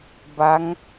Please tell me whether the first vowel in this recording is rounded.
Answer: no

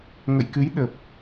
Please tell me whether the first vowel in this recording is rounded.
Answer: no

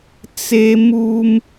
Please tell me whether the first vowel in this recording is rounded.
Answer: no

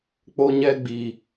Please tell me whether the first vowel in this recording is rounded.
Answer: yes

